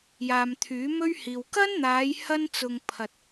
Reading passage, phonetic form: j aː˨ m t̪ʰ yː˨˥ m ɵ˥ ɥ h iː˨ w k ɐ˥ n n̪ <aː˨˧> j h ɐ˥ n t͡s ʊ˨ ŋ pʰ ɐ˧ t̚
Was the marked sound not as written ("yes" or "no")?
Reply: no